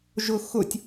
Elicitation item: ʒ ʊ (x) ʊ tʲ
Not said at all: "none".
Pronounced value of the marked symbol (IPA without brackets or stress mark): x